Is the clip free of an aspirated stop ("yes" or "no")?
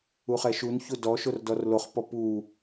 yes